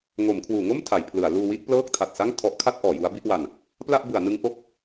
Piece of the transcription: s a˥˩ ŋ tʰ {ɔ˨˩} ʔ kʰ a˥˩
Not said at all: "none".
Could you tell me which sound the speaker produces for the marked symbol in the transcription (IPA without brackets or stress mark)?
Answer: ɔ˦˥